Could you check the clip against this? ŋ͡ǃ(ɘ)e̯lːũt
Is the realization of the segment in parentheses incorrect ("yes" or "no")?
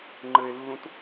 no